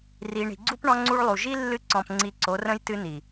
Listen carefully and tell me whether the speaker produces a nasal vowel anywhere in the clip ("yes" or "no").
yes